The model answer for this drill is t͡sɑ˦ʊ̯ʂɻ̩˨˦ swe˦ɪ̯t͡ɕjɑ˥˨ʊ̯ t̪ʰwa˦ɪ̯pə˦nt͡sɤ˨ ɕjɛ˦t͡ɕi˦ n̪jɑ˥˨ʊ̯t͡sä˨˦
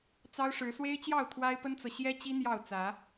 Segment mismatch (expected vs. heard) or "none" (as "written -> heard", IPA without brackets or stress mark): none